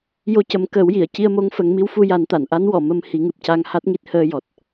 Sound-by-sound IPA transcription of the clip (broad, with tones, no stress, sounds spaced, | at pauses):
j o˧ c ə˨˩˦ m k əː˨˩˦ w j i˨˩˨ ə̯ c i˧ ə̯ m o˧˥ ŋ f ə˨˩˦ ŋ m i˧˥ w f u˧ j a˨˩˦ n t̪ a˨˩˨ n ʔ a˧˥ n w ɔ˨˩˨ m ə˧ m h i˨˩˦ ŋ ɨ˨˩ p̚ c a˧ ŋ h a˦˥ t̚ ŋ i˦˥ t̚ h əː˧ j ɔ˨˩ t̚